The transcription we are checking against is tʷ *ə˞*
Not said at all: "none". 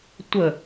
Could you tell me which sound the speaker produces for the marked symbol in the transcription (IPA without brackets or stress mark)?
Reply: ə